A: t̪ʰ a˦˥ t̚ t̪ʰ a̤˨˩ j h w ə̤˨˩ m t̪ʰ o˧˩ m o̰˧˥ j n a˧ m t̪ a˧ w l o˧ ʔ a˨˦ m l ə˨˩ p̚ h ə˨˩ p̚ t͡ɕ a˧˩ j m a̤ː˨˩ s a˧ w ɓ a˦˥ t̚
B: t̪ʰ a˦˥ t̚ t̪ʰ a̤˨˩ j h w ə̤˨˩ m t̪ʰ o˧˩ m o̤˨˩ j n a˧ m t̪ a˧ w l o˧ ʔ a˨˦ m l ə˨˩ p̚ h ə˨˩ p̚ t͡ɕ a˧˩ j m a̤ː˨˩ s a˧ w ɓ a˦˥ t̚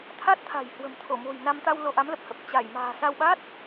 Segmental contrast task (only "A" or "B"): B